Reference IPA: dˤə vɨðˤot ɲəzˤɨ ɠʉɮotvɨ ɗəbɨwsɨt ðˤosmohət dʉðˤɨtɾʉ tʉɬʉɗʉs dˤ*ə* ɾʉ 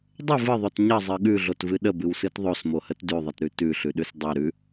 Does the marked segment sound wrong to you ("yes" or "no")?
yes